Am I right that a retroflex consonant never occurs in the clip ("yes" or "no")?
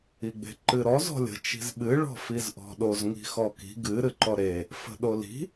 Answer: no